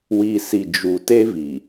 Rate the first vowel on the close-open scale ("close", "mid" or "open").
close